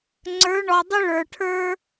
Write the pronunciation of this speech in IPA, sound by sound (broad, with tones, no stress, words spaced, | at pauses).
ŋ͡ǀə˞˩˧ ɳɔ˩dˤʏ˧ ɭə˞˩ʈʰə˞˧